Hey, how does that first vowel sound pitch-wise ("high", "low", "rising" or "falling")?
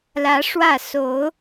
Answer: rising